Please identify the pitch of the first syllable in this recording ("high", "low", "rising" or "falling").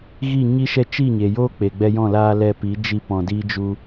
falling